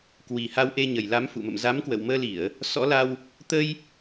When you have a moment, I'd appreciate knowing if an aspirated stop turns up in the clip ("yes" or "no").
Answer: no